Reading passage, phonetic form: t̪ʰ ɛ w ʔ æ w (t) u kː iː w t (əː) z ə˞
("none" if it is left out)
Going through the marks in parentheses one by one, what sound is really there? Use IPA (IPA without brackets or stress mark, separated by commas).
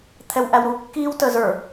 ɾ, əː